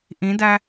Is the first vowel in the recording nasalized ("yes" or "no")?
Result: yes